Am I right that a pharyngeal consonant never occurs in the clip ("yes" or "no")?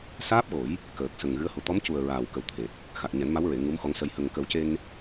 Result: yes